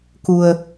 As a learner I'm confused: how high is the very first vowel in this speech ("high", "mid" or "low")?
high